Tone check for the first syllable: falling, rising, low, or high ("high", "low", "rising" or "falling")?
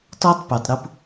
high